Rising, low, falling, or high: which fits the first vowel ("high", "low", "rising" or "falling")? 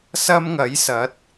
high